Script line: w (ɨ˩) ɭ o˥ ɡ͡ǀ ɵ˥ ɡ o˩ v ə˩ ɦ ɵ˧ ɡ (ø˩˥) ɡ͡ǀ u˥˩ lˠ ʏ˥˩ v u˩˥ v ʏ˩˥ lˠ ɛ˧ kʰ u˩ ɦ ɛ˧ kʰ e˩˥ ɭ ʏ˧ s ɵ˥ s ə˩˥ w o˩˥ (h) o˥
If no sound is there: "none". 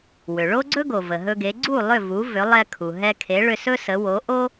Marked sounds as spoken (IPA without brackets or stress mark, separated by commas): ʏ˩, e˩˥, ʔ